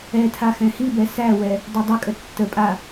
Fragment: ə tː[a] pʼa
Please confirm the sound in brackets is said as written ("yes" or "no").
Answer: no